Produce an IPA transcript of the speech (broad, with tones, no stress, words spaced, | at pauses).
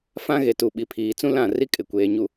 fã˦ɣe˨tu˨ ɓi˨pʰiː˨t͡sũ˦ lã˦˨ri˦kʼɪ˨ kʷeː˨ɲu˨